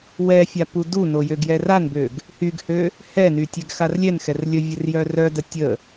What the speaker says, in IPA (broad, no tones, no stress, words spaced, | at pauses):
wɛfʲa puduno jøɡjɛranbøɡ | hyɡhø | hɛny tʲɛɡxarlʲɛnxɛr lʲəvʲər jœrœdə tʲə